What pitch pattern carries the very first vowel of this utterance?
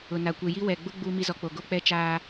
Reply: low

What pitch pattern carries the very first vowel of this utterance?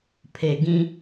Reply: low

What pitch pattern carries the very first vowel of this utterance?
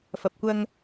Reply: low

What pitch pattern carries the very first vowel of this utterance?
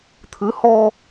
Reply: rising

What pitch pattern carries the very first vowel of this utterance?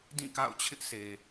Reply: falling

